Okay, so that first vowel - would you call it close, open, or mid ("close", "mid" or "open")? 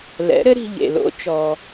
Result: mid